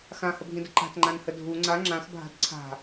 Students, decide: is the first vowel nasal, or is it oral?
nasal